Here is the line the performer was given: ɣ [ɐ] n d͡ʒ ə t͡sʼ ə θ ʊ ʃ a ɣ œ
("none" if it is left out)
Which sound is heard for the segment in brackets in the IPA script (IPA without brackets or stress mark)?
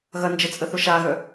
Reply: ɐ